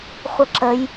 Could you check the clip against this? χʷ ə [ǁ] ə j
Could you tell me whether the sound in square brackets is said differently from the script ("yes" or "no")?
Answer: no